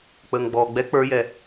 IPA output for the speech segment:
k͡p əː ŋ ɡ͡b ɔː ɡ͡b ɛ k͡p ə˞ j ɛ

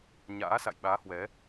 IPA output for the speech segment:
ɲ a̰ː˧˥ s a̰˧˨ j ɓ aː˨˦ h w ɛ˨˦

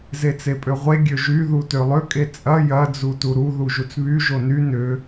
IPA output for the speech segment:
z e t͡s e pʼ ø ʁʷ e ɡʲ ø ʒ y ð u t ø lˠ ʏ kʼ e t͡sʼ ɐ j ɐ d͡z u t u ɾ u ð u ʒ u t͡s β y ʒ o n y n ʏ

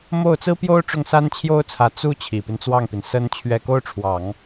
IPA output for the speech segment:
m o˥˩ ʊ̯ t͡s ɹ̩˥ p j o˥ ʊ̯ ʈ͡ʂ ʊ˥˩ ŋ s a˥ n t͡ɕʰ j o˥ ʊ̯ t͡sʰ ä˧˥ t͡s u˥ t͡ɕʰ i˨˩ p i˦ n t͡s w ɑ˥˩ ŋ p i˩ n s ə˥ n t͡ɕʰ ɥ ɛ˥˩ k o˥ ʊ̯ ʈ͡ʂʰ w ɑ˨˩˦ ŋ

